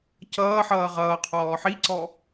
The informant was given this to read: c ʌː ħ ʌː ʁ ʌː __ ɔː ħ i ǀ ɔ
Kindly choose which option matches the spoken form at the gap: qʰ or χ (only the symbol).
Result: qʰ